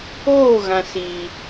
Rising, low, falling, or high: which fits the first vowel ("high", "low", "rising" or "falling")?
falling